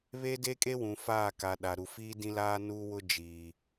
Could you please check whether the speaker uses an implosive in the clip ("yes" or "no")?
yes